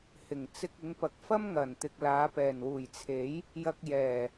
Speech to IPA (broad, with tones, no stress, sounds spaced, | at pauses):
h ɪ˨˩ ŋ t͡s ɪ˧ k̚ ɪ˨˧ ŋ p ɐ˨˥ k̚ f ɐ˥ m ŋ ɐ˨˩ n t̪ ɪ˨ k̚ l aː˨˧ p ɛː˨˩ n w uː˨˩ j t͡sʰ e˨˥ j | j ɐ˧ k̚ j ɛː˨˩